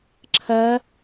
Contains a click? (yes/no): yes